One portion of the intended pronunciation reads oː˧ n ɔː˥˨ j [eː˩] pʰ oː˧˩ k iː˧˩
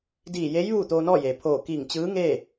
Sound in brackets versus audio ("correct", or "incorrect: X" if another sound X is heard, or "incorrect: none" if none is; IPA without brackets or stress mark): correct